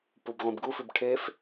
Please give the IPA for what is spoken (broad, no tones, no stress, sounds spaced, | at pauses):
p u b ʁʷ ĩ b ɡ u f ʉ b ʈʰ e f